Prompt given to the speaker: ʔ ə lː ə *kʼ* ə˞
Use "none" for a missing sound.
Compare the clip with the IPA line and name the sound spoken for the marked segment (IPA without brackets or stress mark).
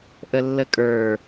kʼ